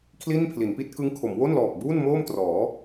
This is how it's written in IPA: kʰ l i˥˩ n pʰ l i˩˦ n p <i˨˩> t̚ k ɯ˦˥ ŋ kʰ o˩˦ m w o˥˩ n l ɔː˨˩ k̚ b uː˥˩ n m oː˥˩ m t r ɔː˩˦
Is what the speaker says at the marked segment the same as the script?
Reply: no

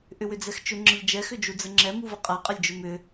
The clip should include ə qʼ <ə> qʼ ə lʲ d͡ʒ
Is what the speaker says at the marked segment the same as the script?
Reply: no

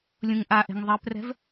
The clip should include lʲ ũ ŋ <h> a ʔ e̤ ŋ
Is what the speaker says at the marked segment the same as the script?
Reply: no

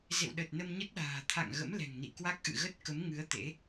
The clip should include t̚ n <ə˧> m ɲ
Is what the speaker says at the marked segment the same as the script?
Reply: yes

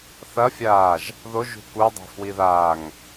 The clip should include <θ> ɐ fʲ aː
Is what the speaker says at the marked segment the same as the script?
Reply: yes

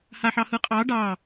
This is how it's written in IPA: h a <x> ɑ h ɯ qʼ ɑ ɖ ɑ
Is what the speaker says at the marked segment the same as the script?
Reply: no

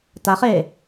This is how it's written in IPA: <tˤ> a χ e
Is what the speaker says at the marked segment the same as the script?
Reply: no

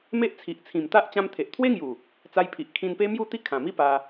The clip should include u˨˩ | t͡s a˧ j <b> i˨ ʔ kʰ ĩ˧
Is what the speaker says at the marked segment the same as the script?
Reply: no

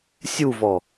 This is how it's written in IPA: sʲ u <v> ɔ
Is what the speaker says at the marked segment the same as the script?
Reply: yes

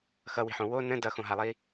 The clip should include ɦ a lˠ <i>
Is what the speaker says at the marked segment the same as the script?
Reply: yes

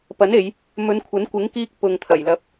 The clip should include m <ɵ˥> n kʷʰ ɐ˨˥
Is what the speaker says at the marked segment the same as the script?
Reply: no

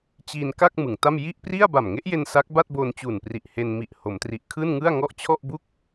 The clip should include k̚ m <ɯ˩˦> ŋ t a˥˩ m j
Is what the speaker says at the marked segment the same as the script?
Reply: yes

